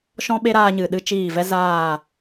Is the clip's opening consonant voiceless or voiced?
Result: voiceless